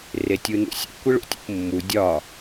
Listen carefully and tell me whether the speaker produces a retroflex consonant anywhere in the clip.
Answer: yes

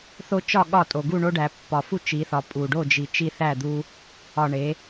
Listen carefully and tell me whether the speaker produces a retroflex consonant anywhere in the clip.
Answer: yes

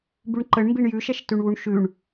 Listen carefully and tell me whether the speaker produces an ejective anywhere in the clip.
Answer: no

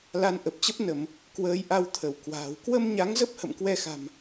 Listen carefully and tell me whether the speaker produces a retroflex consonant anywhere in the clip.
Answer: no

